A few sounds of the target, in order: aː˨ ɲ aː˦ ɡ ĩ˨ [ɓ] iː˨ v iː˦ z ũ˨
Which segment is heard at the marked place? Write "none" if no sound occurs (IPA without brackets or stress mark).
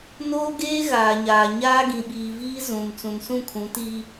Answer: ɓ